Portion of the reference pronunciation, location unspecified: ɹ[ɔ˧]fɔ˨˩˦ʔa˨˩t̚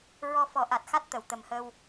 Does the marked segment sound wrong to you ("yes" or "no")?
no